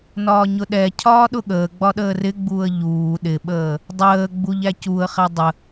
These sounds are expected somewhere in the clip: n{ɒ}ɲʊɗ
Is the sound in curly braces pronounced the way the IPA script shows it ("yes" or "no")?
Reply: no